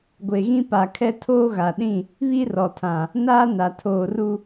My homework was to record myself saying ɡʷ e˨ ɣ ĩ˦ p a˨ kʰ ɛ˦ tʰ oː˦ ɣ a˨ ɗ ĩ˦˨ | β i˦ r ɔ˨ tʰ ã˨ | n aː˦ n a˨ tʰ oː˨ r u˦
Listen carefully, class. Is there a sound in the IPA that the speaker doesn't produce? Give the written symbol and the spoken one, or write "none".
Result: none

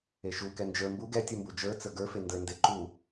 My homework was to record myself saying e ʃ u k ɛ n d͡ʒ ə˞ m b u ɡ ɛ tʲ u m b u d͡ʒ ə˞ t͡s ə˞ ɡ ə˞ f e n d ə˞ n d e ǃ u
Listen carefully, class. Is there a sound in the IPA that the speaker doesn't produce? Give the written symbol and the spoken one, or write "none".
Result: none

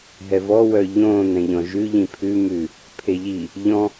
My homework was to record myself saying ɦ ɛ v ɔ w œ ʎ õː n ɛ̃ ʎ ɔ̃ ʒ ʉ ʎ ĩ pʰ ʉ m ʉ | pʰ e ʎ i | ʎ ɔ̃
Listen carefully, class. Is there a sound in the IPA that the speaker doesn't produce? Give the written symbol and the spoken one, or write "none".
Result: none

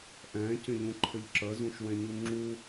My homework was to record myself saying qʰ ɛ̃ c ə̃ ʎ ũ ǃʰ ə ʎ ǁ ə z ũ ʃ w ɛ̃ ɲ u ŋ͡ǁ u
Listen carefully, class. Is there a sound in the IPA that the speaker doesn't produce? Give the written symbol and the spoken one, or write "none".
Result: qʰ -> ʔ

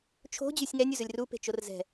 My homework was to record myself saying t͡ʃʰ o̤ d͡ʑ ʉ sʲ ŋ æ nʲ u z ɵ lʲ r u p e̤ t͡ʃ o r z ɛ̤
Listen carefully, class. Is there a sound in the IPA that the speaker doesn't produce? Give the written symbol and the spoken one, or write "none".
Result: none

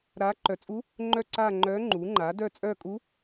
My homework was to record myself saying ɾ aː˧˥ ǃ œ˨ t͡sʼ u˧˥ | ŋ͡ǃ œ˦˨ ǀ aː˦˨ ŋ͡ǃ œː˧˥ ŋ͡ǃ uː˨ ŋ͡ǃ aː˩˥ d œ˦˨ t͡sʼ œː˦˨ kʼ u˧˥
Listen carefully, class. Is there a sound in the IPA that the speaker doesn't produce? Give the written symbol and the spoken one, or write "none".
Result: uː˨ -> uː˩˥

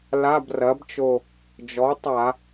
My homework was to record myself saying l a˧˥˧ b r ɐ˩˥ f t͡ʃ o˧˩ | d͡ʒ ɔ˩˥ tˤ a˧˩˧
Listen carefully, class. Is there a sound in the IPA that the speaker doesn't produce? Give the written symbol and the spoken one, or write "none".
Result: f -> b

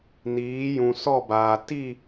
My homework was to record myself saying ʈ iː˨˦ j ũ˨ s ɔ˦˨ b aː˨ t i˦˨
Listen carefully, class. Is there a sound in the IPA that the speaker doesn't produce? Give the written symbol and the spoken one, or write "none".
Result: ʈ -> n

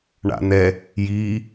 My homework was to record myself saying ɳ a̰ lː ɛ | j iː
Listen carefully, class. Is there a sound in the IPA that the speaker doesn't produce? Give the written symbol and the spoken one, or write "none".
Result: lː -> n̪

